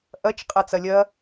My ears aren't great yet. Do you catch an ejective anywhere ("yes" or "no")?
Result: yes